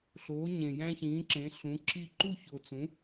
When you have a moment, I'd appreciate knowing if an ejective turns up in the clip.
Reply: no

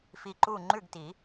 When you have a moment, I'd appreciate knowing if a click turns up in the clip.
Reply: yes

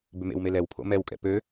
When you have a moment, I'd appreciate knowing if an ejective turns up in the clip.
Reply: yes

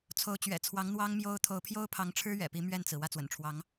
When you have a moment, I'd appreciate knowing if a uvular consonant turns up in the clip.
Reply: no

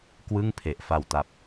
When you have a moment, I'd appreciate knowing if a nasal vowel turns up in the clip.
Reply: no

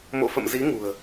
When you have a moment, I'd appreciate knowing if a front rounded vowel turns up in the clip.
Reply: no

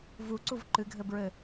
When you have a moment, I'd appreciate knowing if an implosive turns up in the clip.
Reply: no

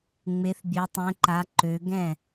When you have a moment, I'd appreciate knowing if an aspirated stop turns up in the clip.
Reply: no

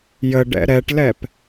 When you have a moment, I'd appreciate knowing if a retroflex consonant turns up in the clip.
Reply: yes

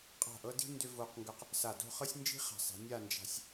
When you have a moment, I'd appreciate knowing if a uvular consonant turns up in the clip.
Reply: yes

